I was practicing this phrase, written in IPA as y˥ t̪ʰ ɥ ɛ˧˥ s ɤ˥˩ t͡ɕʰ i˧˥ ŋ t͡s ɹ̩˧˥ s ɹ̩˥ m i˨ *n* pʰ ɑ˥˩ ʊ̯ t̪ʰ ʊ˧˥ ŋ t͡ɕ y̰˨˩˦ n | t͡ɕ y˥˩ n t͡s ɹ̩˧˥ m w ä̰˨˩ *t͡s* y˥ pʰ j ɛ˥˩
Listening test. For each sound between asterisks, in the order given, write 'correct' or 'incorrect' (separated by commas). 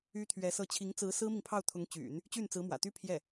incorrect, incorrect